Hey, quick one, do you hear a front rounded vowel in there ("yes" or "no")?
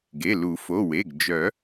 yes